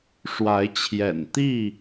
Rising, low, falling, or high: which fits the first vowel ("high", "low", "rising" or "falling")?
rising